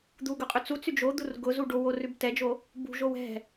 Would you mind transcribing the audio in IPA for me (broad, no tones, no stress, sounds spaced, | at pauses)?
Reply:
d̪ u ɡ ʊ qʼ ʉ t͡s u t͡s y d͡ʒ o d̪ u r ɡ ʊ z u ɖ o w o r ʉ b t ɛ d͡ʒ o | b ṳ ʒ o w ɛ̤